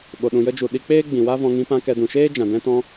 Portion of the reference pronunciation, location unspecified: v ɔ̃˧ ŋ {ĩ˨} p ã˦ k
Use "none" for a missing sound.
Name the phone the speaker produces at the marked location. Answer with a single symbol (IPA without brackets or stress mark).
ĩ˧